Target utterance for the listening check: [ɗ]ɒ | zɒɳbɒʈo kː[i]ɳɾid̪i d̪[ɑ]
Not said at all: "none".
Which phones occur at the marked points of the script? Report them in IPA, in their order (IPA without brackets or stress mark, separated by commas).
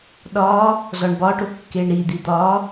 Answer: ɗ, e, ɒ